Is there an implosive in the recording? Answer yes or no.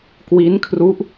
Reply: no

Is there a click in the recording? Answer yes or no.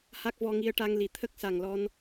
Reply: no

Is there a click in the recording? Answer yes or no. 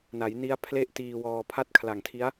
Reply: no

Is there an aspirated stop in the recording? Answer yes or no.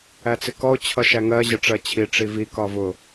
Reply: yes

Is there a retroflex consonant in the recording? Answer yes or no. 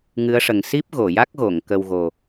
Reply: yes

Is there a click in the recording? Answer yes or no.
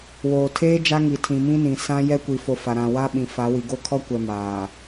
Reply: no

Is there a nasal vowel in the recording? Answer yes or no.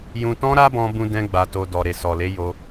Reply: yes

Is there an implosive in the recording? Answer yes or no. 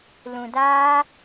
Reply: no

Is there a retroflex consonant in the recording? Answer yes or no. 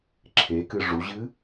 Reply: yes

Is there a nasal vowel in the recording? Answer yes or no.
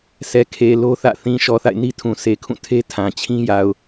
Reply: yes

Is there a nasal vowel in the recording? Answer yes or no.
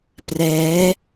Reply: no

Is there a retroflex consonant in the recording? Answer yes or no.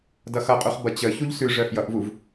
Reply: yes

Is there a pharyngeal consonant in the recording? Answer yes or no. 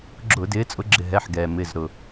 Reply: yes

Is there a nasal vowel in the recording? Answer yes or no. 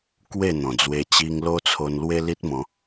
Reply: yes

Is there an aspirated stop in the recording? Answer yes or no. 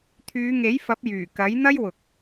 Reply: yes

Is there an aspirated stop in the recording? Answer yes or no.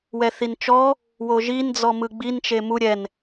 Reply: no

